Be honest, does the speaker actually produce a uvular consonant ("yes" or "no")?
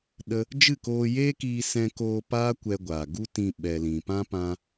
no